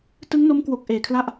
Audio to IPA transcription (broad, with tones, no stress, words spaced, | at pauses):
tɯ˦˥ŋno˦˥mkwo˨˩k̚ ʔeː˨˩kʰla˥˩ʔ